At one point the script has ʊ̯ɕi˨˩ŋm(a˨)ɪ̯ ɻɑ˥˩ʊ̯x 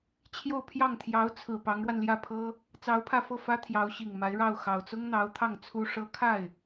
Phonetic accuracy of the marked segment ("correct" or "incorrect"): incorrect